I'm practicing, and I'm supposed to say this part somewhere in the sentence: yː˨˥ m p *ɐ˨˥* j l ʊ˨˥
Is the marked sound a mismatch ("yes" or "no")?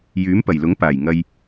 yes